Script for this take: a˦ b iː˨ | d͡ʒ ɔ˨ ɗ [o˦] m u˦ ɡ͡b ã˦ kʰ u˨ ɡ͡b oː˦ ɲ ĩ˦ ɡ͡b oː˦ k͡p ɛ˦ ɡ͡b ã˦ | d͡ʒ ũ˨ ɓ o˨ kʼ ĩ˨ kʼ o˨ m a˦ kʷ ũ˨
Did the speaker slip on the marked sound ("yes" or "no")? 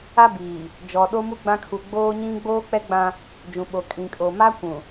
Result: no